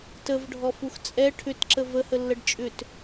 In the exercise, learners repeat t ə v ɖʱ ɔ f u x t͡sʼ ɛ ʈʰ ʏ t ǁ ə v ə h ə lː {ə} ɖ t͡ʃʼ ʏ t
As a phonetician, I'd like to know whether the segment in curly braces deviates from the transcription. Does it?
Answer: no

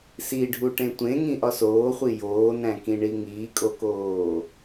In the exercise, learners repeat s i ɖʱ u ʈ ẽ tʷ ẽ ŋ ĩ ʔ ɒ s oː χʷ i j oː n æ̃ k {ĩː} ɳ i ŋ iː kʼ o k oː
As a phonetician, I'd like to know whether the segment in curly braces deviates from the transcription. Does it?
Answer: yes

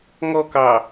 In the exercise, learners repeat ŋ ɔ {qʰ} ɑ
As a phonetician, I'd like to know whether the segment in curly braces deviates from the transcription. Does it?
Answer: yes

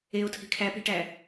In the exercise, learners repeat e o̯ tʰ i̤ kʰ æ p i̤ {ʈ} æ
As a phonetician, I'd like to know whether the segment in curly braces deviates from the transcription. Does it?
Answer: no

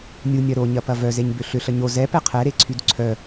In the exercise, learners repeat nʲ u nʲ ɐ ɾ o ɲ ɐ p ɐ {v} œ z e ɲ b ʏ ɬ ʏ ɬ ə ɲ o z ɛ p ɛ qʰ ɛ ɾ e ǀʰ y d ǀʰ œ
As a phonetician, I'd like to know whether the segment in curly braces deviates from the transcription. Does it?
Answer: no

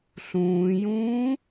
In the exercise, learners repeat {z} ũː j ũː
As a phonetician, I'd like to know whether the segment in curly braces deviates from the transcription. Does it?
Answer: yes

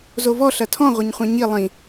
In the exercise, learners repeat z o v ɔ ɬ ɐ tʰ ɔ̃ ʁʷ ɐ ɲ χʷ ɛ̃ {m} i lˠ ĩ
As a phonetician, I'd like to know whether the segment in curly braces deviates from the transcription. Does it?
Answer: yes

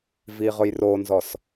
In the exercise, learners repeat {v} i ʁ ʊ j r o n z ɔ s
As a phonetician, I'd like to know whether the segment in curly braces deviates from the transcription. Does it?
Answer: no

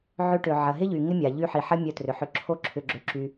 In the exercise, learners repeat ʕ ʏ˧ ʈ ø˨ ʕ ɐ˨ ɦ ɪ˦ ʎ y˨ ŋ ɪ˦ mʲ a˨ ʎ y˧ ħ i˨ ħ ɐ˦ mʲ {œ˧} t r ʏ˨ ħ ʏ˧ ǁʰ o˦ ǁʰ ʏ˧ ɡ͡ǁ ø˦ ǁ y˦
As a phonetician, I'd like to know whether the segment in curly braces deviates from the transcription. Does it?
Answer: no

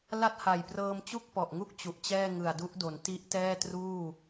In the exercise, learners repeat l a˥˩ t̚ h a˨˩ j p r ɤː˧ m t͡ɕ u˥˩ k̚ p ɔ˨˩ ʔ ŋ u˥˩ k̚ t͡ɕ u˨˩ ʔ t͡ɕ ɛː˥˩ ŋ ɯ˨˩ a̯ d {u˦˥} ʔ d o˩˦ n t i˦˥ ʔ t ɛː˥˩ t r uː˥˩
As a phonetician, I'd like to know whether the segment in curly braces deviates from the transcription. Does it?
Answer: no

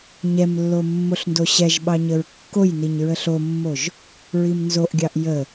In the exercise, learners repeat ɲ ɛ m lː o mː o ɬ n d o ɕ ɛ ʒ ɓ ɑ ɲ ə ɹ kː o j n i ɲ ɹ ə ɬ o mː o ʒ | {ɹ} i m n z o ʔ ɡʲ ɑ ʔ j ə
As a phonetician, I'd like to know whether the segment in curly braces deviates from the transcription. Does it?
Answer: no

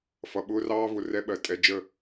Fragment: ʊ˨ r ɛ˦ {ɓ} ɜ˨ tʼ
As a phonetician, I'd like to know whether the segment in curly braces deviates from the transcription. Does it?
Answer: no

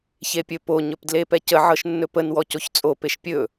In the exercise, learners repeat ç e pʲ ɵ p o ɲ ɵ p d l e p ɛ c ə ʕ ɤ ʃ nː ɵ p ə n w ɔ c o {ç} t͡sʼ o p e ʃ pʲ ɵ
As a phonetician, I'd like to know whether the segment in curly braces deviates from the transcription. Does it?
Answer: no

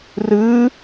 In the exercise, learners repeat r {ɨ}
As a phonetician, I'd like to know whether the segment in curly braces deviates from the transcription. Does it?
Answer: no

